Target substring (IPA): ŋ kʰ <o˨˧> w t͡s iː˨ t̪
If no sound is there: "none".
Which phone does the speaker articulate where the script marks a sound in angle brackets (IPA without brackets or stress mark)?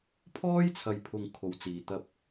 o˨˧